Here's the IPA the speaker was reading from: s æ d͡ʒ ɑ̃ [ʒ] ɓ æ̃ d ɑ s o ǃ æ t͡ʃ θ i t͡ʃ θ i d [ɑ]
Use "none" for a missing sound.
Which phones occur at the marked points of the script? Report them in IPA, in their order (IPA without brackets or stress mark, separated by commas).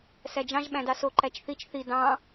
ʒ, ɑ̃